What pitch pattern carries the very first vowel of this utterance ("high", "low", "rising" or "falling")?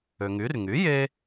low